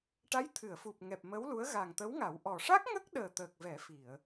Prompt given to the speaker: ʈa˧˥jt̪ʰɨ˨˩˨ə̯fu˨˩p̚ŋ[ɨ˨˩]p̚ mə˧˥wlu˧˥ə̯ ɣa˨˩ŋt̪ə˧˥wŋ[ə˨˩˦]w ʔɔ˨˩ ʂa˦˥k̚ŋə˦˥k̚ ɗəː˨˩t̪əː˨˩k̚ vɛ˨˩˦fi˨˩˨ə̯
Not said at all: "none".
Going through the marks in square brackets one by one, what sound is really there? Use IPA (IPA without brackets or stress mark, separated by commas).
ɛ˨˩, a˨˩˦